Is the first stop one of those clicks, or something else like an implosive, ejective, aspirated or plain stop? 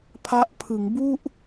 aspirated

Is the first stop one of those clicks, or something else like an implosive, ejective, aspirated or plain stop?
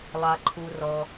click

